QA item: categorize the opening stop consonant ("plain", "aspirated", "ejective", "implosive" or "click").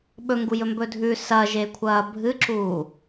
implosive